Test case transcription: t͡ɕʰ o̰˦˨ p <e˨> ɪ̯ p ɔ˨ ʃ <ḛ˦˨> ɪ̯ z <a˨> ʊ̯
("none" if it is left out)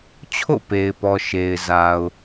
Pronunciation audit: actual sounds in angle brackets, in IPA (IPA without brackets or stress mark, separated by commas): e˨, e˨, a˨